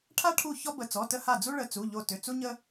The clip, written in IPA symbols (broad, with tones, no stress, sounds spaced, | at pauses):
ʈʰ a˦ ʈʰ u˧˩ ç ɔ˦ b ə˩˧˩ t͡s ɔ˩˧˩ t ə˦ h a˧˩ d͡z u˦ ɭ ə˩˧˩ t͡s u˩˧˩ ʎ o˧˩ t ʏ˩˧˩ t͡s u˦ ɲ ə˦